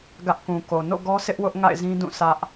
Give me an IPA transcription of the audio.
ɡ ä˦ ʔ k ũ˨ k o˨ n o̰˦˨ ɡ ɔ˦ sʰ ɪ˦ ʔ w ʊ˦ ʔ ŋ a̰˦˨ ɪ̯ z ĩ˦ d ũ˦˨ sʰ ä˦ ʔ

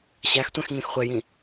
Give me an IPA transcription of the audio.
ɕ æ x tʷ ɛ̃ x ŋ ĩ x χʷ ɛ j ĩ

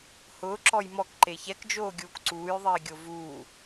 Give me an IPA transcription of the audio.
h ʊː ǁ ɔ j m ɔ k ǃ e ç ɛ k d͡ʒ oː ɡʲ uː k ǀ uː j ðˤ iː ɡʲ o v uː

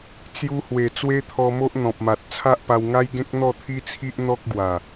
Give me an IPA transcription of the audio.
t͡s j u˧ h w e˨˩ t͡s w e˦ t̪ʰ ɔ˧ m o˦ ʔ n̪ ɔ̃˨ p̚ m a˨ t̚ t͡sʰ a˦ ʔ p a˧ w ŋ a˦ j ɡ ẽ˦ k̚ n̪ ɔ˥˧ t̪ʰ i˦ t͡sʰ i˦ ʔ n̪ ɔ˦ k̚ ɡ w a˨˩

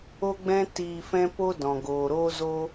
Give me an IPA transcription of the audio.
o˦ ɡ͡b ɛ̃˦ t iː˧ f ɛ̃˦ p o˦ d ɔ̃˨ ɡ oː˨ ɾ oː˦ z oː˦

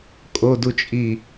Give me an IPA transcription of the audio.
kʼ o d u t͡ʃʼ i

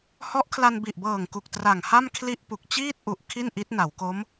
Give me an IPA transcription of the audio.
h ɔ˦˥ ʔ kʰ l a˧ n b i˨˩ ʔ b ɤː˨˩ ŋ k u˨˩ k̚ t r a˨˩ ŋ h a˥˩ m kʰ l i˥˩ ʔ p u˨˩ k̚ t͡ɕ iː˥˩ t̚ ʔ u˨˩ ʔ kʰ i˥˩ n ʔ i˦˥ t̚ n a˩˦ w k o˦˥ m

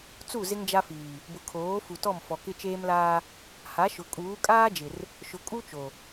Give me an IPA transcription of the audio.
t͡s u˦˨ z ɪ˦ ŋ d͡ʒ a˦ f iː˨ | b ʊ˨ kʰ oː˨˦ f u˨ t ɔ˦˨ m f ɔ˨ k ɪ˦ t͡ʃ eː˦ m l aː˦ | h a˨˦ ʃ ʊ˨ kʼ uː˨˦ kʼ aː˦ d͡ʒ ɪ˨ r | ʃ ʊ˨ kʼ u˦ t͡ʃ o˨

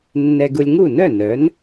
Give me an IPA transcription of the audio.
nː ɛ˧ ɡ u˧ lʲ ŋ u˥˩ n œ˥˩ n œ˩˥ n

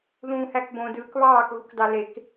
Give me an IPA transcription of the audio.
ð ũː h æ k b õ d ɯː k β ɑː k ɣ u k d ɑ l e k

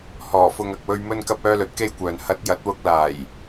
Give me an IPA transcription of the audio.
h ɔː˨˩ f ʊ˨ ŋ ɐ˨ k̚ w ɵ˧ ɥ m ɵ˧ n k ɐ˧ p̚ œː˧ l ɵ˨˥ t̚ k e˧ j kʷ œː˨ n h ɐ˨˥ t̚ j ɐ˨˥ t̚ w ʊ˧ k̚ l aː˨˩ j

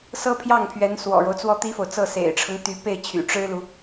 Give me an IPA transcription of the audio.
s ɤ˥ pʰ j ɑ˥˩ ŋ pʰ ɥ ɛ˧˥ n s w ɔ̰˨˩ ɻ o˦ ʊ̯ t͡s w ɔ˥˩ t̪ i˥ f o˨ ʊ̯ t͡s ɤ˥˩ s ḛ˨˩ ɪ̯ ʈ͡ʂʰ ɤ˦ ŋ t̪ y˧˥ p e˥˩ ɪ̯ t͡ɕʰ y̰˨˩ ʈ͡ʂ ɻ̩˥ l u˨

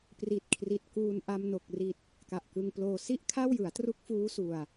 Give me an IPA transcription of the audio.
p r i˨˩ t̚ kʰ r i˨˩ t̚ k uː˧ n ʔ a˧ m n o˨˩ k̚ r i˨˩ t̚ | k a˨˩ ʔ k ɯ˧ ŋ p l oː˧ s i˥˩ ʔ kʰ a˥˩ w j ɯ˩˦ a̯ t r u˦˥ k̚ f uː˦˥ s u˨˩ a̯

